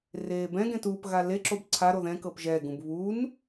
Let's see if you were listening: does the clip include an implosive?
no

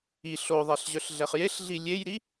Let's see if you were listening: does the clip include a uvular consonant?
yes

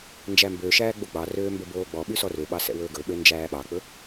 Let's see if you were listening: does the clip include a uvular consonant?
no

